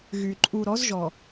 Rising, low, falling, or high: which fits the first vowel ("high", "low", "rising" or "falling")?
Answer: low